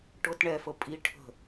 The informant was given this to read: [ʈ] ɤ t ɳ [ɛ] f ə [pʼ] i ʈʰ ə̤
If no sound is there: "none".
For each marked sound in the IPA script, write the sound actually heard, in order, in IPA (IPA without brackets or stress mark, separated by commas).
ʈ, ɛ, pʼ